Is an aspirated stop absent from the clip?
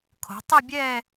no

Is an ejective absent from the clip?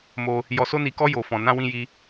yes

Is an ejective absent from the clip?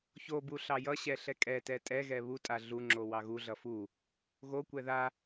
no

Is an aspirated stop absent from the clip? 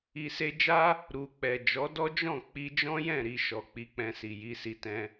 yes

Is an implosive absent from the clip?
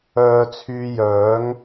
yes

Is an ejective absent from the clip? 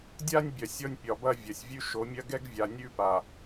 yes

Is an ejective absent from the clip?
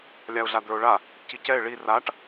yes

